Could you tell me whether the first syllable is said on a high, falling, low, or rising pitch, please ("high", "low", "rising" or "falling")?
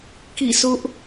falling